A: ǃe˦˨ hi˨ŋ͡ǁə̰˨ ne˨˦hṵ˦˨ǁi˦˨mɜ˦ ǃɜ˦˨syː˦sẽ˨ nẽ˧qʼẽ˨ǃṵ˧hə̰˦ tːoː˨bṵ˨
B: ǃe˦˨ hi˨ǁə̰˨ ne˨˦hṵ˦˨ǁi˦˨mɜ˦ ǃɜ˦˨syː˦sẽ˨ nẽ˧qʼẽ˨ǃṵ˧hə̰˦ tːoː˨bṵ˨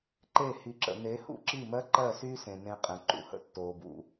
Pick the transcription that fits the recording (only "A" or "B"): B